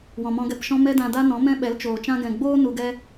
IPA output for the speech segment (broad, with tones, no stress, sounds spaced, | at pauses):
w ɔ̃˨ m ɔ̃˧ ɡ ɛ˧ p ʃ ɔ̃˦ m ɛ˦ d ã˧ d a˦ n ɔ̃˨˦ m ɛ̃˦ ɓ ɛ˨˦ l t͡ʃ oː˨ t͡ʃ ã˧ ɡ ɛ̃˨ ɡ͡b oː˦ n u˧ ɡ ɛ˦